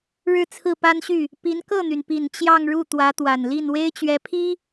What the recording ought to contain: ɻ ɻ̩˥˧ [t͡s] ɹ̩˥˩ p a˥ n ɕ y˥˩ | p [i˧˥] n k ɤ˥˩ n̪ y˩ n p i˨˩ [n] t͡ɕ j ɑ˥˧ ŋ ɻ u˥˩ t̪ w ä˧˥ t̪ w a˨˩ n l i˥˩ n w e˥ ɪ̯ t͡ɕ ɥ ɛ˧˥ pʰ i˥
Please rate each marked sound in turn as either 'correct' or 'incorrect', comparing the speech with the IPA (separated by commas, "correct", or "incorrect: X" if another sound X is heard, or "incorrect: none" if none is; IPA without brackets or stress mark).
incorrect: t͡sʰ, correct, correct